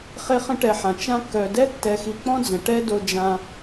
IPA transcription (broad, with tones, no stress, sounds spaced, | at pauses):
χ e˦ χ ə̃˦ ʈ ɛ˨ ħ ã˩ t͡ʃ ã˦ kː œ˨ d ɛ˥ tː ɛ˨ x i˨ k͡p ɔ̃˥ d͡z ə̃˩ ʈ ɛ˥ d o˦ d͡ʒ ã˦